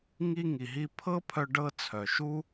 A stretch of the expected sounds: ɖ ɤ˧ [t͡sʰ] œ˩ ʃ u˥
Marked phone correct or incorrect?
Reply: correct